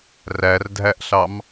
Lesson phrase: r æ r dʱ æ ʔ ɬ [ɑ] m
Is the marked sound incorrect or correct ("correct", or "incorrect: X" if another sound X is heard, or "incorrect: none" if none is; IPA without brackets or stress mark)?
correct